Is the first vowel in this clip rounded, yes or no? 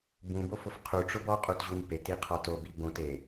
yes